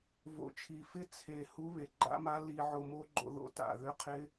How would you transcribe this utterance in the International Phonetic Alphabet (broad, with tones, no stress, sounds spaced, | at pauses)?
v o̰˨˩ t͡ʃʰ i˨˩ f ɪ˦˥ t͡sʰ e˨˩ h u˦˥ β e˨˩ ɡ͡ǃ a̰˦˥ m a˦˥ l i˧ ʕ o˧ m o˦˥ ɡ͡ǃ o̰˧ ð o̰˦˥ t a̰˨˩ ð ʏ˦˥ qʰ ɪ˦˥